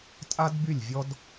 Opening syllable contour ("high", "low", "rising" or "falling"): high